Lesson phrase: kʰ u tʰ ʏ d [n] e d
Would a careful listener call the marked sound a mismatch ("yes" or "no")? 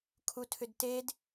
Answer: yes